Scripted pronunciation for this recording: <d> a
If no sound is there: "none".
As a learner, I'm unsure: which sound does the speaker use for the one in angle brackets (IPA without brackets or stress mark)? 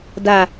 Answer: d